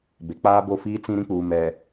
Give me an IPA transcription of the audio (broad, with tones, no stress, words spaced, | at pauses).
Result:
be˨k͡paː˦bo˦˨ fiː˦t͡sĩ˦ ɾĩ˦k͡puː˨ mɛ˨